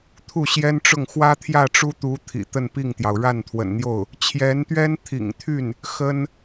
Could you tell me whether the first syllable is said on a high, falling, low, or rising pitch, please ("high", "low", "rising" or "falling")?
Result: falling